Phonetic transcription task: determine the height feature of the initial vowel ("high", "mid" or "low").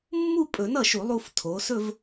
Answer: high